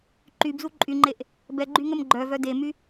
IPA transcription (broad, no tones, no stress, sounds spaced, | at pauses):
ǃ y b z u ǃʼ y ŋ͡ǃ e ʔ | b ɛ ɡ͡ǃ y ŋ ə m ɡ͡ǃ œ v œ d e m y